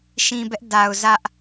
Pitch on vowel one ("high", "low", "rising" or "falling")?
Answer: low